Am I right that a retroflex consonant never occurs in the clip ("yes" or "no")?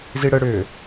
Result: no